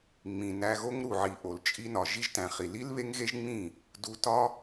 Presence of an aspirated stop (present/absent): absent